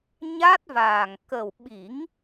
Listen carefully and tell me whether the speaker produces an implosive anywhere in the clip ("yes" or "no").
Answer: yes